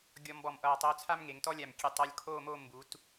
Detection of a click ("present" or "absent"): absent